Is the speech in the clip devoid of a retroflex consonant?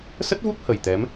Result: yes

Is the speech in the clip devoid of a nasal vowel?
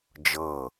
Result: yes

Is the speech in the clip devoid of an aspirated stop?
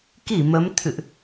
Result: no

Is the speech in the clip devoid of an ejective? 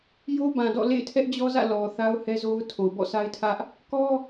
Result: yes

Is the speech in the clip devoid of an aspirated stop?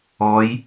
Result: yes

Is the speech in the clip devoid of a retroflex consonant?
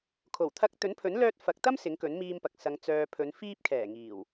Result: yes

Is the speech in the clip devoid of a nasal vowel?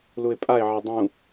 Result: no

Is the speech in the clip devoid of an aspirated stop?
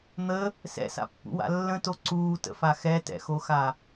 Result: yes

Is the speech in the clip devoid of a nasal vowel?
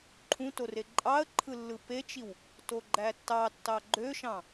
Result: no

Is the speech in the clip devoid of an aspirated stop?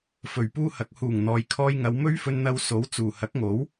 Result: no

